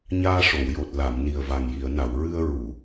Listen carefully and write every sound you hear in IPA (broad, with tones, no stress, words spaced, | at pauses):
ɲaː˧ʂo˨˩˨wjo˨˩t̚ la˨˩˨m ni˨˩ə̯va˨˩ŋji˨˩˨ə̯na˨˩˨w ɹɨ˧ə̯ ɹu˨˩˨